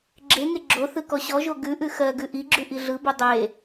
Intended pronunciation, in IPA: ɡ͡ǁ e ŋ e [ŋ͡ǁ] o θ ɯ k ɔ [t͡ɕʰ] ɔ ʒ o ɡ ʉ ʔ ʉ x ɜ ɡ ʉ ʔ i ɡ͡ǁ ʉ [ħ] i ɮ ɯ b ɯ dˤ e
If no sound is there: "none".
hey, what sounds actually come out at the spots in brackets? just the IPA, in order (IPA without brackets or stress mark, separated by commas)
ɡ͡ǁ, ɕ, ʔ